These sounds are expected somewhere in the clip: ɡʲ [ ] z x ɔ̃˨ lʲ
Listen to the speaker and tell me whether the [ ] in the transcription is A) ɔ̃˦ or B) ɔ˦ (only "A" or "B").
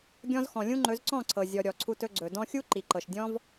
A